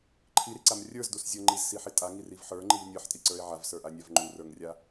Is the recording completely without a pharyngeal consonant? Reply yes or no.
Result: no